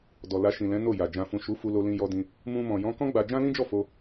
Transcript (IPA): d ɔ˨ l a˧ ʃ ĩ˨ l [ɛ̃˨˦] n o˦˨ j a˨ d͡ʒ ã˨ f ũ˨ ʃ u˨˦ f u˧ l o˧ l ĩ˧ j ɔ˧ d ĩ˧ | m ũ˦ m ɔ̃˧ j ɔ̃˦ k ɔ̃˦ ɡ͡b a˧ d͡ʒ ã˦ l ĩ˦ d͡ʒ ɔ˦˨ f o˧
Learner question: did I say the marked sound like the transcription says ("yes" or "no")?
yes